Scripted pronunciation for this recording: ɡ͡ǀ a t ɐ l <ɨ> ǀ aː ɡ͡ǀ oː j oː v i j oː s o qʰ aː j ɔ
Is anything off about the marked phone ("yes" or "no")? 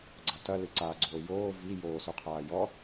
no